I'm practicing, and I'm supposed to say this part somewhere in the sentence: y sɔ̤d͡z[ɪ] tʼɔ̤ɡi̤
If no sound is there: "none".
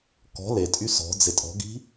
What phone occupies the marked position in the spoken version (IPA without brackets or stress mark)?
ɪ